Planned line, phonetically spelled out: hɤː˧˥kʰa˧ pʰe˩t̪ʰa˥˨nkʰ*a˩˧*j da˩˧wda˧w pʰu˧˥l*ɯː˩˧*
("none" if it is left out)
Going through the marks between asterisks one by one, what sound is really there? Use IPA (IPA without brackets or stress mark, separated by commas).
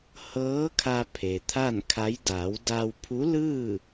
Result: a˧˥, ɯː˥˨